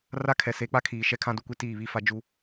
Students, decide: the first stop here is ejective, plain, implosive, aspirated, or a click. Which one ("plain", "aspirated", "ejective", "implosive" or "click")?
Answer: aspirated